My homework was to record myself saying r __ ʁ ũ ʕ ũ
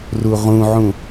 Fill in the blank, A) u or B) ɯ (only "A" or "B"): A